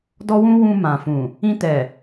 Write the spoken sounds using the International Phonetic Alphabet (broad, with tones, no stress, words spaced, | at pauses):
dɔ˦wũ˦ wũ˧ mã˨fũ˨ | ĩ˧tɛ˨